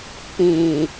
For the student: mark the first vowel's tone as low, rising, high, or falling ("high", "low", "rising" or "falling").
low